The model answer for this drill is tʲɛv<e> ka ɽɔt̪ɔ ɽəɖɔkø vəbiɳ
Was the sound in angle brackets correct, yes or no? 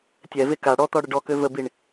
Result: yes